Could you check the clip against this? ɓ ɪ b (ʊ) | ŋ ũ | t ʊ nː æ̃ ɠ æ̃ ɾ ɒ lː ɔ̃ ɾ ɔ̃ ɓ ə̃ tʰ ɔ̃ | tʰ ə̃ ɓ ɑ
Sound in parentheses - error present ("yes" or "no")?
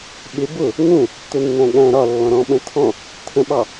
no